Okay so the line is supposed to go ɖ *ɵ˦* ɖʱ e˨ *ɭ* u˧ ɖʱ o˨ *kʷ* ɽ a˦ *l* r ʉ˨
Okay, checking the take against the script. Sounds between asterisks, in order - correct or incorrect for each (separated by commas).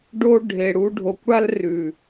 incorrect, incorrect, correct, correct